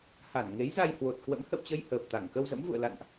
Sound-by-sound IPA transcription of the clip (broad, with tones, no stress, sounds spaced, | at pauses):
h a˧˩ n ŋ e˨˦ j z a˧ j h w o˨˩ t̚ k w ə̰˧˥ m h ə̰˧˨ w t͡ɕ ə˧ j h əː˨˩ p̚ t̪ a˧˩ ŋ k ə˧ w z ə̰˧˥ m v ṵ˧˨ ə̯ l a̰˧˨ n ʔ